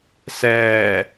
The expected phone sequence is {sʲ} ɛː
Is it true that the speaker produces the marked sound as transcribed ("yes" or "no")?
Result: no